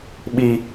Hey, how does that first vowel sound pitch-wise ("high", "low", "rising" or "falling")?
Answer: high